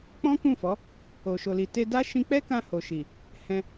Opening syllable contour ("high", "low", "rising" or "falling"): high